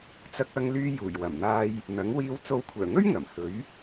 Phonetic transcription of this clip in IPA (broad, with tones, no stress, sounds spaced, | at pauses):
t͡s ɐ˧ k̚ ɐ˧ ŋ l yː˧ j uː˨˩ j w ɐ˨˩ m n̪ aː˧ j | n̪ ɐ˨˥ ŋ w iː˨˧ w t͡s o˨˧ w kʷʰ œː˨˩ ŋ ɵ˥ ɥ ŋ ɐ˨˩ m h ɵ˨˥ ɥ